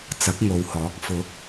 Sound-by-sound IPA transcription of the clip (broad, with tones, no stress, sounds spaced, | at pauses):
t͡s ɐ˨˥ k̚ ŋ o˨ w h ɔː˨˥ k̚ f ʊ˨˥ k̚